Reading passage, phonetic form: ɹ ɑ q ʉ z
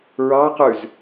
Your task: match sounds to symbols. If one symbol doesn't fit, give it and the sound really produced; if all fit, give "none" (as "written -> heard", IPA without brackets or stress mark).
none